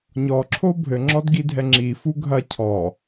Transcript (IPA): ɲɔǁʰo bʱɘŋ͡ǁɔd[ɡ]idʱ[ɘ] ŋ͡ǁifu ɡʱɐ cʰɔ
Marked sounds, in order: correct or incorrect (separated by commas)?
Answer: correct, incorrect